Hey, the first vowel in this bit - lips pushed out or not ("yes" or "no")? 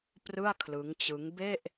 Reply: no